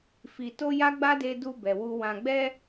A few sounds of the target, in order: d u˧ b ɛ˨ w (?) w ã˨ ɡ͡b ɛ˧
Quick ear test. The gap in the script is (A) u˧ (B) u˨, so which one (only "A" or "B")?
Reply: A